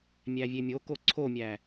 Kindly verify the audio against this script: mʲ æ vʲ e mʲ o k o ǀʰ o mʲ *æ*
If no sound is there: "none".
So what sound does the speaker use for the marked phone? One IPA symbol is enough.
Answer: æ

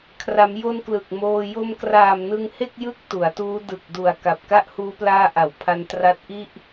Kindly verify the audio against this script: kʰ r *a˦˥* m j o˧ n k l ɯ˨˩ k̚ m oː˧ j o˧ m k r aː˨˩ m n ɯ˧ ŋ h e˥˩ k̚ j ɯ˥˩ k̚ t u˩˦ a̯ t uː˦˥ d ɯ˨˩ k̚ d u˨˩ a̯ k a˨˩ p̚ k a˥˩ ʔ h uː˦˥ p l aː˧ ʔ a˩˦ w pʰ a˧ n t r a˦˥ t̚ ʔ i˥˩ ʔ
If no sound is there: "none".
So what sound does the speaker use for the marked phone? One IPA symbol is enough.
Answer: a˩˦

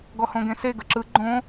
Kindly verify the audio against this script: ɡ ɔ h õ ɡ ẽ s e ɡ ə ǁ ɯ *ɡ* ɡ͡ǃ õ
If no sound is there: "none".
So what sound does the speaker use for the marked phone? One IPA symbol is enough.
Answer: none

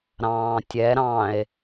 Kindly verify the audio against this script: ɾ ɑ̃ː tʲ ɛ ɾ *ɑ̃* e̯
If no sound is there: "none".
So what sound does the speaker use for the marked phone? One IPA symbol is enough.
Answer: ɑ̃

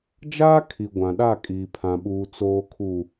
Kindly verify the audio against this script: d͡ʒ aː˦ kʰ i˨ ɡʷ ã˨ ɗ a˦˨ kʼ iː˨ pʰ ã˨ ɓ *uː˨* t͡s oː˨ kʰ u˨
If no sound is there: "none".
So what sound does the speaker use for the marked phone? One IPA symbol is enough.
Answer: uː˨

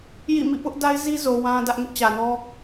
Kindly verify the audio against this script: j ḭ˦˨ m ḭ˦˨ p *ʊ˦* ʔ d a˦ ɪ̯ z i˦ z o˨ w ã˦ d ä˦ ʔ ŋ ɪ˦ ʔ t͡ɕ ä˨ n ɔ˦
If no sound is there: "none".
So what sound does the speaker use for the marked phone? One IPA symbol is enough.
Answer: ʊ˦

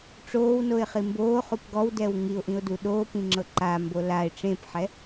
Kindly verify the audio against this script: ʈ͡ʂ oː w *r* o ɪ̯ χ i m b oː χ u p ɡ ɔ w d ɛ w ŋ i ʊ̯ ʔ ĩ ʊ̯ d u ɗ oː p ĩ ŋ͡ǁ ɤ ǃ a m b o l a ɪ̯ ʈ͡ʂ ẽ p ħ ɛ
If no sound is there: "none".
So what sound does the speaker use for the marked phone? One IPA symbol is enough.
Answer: n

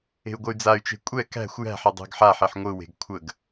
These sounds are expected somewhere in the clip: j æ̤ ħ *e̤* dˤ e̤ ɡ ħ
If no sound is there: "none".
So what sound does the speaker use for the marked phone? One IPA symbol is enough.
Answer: e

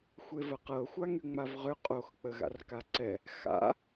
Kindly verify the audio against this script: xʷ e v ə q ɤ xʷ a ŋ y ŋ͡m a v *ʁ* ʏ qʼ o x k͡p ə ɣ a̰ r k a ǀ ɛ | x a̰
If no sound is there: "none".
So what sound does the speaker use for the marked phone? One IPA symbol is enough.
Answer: ʁ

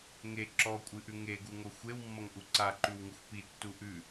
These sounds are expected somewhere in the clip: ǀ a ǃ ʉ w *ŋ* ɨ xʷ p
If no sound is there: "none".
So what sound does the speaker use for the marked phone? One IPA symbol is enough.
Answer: ŋ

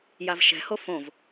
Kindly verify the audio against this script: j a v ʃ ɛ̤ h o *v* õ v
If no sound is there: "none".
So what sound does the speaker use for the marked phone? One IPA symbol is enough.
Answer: f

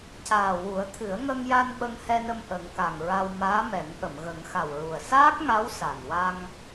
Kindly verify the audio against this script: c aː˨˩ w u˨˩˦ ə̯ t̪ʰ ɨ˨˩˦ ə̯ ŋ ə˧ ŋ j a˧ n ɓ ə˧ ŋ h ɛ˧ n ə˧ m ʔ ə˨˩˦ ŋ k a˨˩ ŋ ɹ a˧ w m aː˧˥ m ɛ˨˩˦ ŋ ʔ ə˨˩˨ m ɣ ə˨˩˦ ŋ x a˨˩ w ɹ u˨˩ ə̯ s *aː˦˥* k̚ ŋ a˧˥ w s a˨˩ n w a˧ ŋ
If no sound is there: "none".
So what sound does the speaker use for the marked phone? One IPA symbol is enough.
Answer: aː˦˥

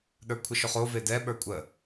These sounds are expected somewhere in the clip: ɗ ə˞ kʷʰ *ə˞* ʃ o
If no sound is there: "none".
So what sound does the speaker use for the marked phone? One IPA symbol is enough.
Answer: ə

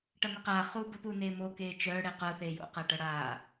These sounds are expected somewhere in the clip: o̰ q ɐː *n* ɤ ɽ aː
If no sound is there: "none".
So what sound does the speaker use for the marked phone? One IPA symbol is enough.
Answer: ʈ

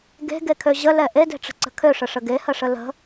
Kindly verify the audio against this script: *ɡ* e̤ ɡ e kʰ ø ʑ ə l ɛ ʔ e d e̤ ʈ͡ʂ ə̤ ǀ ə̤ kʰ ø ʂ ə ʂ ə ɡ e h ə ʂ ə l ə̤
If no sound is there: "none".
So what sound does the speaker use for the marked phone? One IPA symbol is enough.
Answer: ɡ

